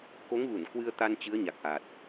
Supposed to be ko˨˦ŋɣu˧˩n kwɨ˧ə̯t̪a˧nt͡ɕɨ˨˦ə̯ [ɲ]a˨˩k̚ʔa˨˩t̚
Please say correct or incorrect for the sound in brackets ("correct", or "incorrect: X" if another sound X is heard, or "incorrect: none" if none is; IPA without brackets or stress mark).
correct